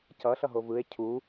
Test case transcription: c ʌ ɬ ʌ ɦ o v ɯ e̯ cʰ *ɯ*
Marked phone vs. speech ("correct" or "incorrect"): incorrect